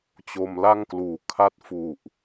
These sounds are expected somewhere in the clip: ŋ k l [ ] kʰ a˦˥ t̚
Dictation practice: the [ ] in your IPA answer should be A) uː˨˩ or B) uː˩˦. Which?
B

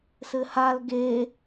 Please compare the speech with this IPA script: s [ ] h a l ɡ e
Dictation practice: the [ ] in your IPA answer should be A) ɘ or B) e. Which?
A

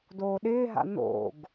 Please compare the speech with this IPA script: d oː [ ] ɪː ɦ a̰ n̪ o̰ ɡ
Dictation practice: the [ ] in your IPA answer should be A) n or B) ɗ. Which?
B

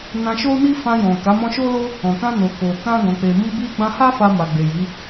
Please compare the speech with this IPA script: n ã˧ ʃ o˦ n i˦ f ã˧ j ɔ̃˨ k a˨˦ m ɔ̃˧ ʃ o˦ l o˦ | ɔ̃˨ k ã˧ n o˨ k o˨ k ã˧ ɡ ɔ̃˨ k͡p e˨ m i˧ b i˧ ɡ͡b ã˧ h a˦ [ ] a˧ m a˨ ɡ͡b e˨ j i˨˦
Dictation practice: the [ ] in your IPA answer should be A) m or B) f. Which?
B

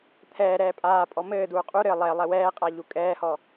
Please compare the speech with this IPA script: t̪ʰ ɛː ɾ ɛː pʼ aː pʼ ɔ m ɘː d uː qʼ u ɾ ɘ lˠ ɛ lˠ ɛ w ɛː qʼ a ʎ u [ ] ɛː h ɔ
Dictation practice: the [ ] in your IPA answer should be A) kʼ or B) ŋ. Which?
A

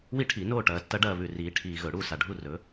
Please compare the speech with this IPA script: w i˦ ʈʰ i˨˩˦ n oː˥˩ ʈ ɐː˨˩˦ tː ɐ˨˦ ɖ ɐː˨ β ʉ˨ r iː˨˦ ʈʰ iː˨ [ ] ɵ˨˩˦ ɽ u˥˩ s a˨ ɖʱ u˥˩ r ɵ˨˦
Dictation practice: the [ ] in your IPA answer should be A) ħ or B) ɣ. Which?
B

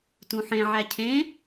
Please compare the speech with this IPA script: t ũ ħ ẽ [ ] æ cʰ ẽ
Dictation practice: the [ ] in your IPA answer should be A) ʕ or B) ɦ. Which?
A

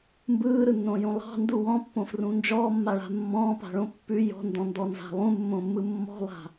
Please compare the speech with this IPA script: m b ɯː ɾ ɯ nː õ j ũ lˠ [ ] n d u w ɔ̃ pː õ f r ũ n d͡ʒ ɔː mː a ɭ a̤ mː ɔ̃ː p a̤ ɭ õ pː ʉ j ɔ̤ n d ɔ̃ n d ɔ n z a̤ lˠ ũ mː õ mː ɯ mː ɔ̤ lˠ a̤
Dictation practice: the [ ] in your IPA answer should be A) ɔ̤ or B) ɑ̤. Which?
B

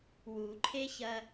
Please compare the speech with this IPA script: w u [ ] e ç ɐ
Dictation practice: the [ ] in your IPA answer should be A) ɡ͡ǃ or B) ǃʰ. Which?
B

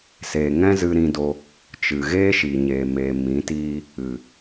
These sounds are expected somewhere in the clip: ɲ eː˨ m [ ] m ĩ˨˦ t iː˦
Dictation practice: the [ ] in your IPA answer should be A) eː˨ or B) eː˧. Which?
A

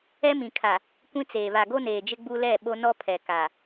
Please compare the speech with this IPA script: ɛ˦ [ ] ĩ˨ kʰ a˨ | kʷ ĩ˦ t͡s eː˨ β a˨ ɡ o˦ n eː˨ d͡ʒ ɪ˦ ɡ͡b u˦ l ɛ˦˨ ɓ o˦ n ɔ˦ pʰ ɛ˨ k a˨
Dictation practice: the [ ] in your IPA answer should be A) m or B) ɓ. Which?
A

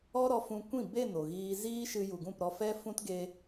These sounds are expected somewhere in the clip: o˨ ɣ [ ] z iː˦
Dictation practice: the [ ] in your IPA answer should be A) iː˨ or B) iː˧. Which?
B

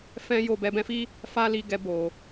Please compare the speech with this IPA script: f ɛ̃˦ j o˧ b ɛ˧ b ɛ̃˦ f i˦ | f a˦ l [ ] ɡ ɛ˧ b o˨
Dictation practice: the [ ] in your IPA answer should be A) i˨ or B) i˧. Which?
B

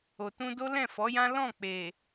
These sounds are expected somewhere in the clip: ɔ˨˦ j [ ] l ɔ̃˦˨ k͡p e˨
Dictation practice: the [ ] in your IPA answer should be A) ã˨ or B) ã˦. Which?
B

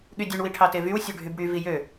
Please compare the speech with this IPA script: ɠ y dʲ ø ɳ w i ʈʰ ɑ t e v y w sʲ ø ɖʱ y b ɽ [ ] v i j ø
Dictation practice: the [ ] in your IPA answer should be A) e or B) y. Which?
B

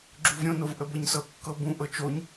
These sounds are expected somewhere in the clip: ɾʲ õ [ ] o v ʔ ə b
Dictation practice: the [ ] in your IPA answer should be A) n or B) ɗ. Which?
A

